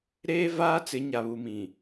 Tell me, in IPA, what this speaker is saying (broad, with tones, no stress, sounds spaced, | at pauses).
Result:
ɾ eː˦ v aː˦ t͡s ɪ˨˦ ɲ a˨ β u˨ m ĩ˨